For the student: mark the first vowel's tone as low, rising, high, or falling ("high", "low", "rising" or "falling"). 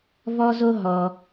high